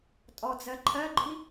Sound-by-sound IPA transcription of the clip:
tʼ ɔ d͡z ɜ ǃʰ ɜ ɡ͡ǃ i

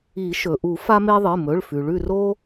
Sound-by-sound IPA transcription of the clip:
i˨˩˦ ʃ ɵ˩ ʔ u˨˩˦ f a˦ m e˦ ðˤ ɨ˩˧˩ m ɵ˩˧˩ ɭ f ʉ˩ ɭ ʉ˦˨ r o˦

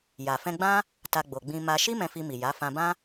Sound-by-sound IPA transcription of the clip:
j a˨ f ɛ̃˧ ɡ͡b ã˦ | t a˧ ɡ͡b o˨ ɡ͡b ĩ˧ m a˧ ʃ i˦ m ɛ̃˧ f i˧ m i˨ j a˨˦ f ã˧ b ã˦

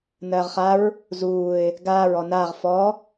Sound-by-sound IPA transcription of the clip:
n ɜː ʁ χ a ɹ | z uː ɪ̯ | ɡ aː ɹ ɔ n aː ʁ f ɔ

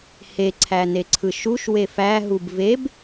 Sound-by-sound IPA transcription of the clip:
h e ǀʰ æ n e ǀʰ ɯ ʃ u ʃ w e f æ ɦ u b v e b

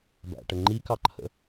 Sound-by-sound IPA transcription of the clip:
b æ̰ ʈ ə ŋ͡ǃ i k ɑ ǃʰ ə̰

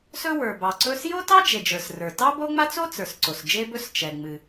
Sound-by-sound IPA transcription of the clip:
s ɵ˥ w ə˞˩ b ɑ˩ ǀ ɵ˥ s j o˥ t ɑ˥ d͡ʒ e˩ d͡ʒ ə˞˩ s r ə˞˩ t ɑ˥ b o˥ ŋ͡m a˥ t͡s o˥ t͡s ə˞˩ s ǀ o˩ s d͡ʒ e˥ b ɵ˥ s t͡ʃ ɛ˩ ŋ͡m ɨ˩

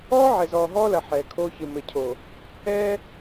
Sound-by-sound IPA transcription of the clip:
ɔː˦ ʕ ɛ˨ z ɔː˨ ɦ ɔː˦ l ɐ˨ ħ ɛː˨ kʰ oː˦ ç ɨ˨ m ɘ˨ cʰ o˨ | ɛː˦

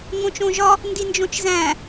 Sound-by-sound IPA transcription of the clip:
ŋ õ t͡ʃ õ ʒ ɒ | n d i n d͡ʒ õ t͡ʃ z æ̃

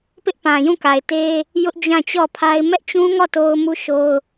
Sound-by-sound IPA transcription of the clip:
p ɪ˦ ʔ p ã˨ j ũ˦˨ k a˨ ɪ̯ t e˦ | j ʊ˦ ʔ d͡ʑ ã˦˨ t͡ɕ ɔ˦˨ pʰ a˦ ɪ̯ m ɛ˦ ʔ t͡ɕ ũ˦ ŋ ɔ˦˨ t o˦ ʊ̯ m u˦ ʃ o˦ ʊ̯

